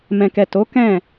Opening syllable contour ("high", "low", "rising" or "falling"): low